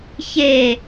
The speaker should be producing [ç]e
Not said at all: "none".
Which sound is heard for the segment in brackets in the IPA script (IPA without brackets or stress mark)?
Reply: ç